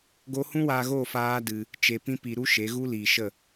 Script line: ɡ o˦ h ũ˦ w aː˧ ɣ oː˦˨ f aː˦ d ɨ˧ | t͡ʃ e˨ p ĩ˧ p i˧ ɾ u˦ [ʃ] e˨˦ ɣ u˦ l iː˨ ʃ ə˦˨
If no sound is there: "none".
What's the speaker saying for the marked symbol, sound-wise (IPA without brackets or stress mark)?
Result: ʃ